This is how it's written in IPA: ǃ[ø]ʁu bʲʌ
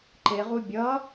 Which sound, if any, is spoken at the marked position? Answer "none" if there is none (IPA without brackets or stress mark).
e